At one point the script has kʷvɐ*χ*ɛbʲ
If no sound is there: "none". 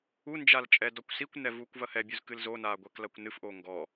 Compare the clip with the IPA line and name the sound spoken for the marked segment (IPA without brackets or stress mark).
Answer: h